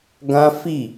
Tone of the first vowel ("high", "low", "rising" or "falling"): high